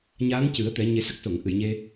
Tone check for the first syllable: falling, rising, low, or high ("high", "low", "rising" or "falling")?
rising